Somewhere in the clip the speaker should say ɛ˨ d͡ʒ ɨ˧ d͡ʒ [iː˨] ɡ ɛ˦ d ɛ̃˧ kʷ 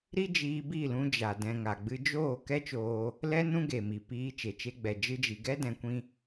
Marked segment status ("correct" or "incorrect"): incorrect